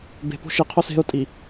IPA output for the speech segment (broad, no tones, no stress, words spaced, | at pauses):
be̤po̤ ʃiqʰos e̤ʊ̯tʼi